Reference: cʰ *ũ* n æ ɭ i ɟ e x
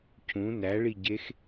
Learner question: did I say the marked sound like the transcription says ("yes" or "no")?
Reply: yes